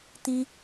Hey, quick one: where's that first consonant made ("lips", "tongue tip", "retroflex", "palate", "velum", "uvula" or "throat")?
tongue tip